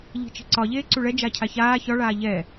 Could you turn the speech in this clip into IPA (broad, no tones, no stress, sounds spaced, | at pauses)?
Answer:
ʎ i̤ t͡ʃ i̤ ǀ ɒ ʎ eː ǀ u ɭ ɛ d͡ʒ a cʰ a ç aː ç ɒ ɭ aː ʎ ɛ